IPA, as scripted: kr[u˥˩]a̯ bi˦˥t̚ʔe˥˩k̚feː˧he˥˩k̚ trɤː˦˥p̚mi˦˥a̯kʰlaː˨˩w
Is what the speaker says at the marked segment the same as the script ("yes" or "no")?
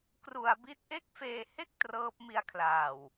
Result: no